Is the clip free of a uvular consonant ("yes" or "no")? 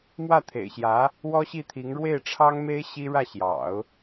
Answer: yes